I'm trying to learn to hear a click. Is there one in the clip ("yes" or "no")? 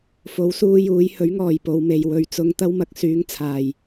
no